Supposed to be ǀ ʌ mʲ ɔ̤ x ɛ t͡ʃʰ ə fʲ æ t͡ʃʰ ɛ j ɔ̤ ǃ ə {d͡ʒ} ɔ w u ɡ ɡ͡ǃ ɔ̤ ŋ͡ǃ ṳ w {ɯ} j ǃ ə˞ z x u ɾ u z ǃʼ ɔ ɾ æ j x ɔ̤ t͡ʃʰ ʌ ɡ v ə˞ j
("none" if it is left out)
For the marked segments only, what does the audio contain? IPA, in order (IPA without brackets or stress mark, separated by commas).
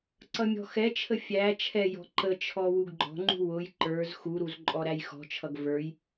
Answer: t͡ʃʰ, ʊ